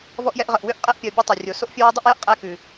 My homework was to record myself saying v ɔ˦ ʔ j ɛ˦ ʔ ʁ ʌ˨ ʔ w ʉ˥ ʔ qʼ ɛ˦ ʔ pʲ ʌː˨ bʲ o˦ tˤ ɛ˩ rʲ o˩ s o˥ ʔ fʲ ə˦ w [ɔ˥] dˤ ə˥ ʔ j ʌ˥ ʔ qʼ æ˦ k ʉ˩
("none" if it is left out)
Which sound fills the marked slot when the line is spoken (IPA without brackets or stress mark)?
ɔ˥